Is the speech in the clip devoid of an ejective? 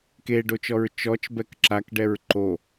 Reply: yes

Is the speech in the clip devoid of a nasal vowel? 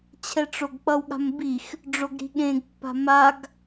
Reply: no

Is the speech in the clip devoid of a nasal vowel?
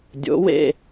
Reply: yes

